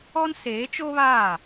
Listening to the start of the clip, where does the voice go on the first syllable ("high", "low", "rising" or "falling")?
high